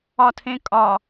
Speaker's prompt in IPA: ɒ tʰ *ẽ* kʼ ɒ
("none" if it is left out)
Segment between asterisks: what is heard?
ẽ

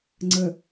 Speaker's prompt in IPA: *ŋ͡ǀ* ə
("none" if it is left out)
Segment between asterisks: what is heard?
ŋ͡ǀ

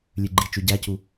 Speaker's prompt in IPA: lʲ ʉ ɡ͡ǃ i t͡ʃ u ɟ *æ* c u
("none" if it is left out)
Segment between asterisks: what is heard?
æ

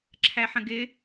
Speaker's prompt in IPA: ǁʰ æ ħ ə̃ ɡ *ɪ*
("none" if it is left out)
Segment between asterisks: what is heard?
ɪ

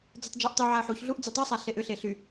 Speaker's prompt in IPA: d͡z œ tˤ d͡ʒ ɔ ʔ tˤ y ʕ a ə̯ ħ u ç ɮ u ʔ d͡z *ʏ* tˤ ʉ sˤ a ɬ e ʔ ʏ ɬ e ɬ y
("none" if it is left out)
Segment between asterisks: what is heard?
y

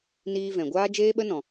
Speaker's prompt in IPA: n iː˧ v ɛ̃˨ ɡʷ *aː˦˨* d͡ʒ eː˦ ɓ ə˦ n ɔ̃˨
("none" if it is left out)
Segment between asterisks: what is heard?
aː˦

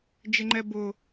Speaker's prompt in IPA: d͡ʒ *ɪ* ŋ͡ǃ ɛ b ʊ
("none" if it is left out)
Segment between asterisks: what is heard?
ɪ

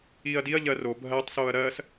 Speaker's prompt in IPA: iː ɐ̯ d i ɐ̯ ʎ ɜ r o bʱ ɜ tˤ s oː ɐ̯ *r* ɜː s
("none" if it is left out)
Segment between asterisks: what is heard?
ɾ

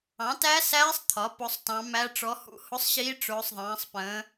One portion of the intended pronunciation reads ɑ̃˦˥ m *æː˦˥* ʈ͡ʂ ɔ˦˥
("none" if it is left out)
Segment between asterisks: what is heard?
æ˦˥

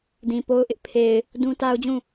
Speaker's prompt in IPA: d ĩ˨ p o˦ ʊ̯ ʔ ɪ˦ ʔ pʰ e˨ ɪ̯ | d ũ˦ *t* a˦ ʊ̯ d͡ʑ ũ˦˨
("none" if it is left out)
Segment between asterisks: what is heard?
t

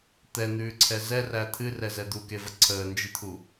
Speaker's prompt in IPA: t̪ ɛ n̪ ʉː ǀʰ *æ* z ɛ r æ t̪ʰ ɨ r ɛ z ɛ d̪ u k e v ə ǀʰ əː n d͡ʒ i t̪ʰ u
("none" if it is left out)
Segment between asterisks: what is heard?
ɛ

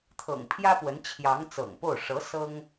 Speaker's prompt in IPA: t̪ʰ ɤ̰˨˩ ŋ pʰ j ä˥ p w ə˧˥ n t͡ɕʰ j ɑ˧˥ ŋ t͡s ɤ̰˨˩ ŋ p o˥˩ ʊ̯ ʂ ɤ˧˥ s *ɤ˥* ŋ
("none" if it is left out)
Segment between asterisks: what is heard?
ɤ˥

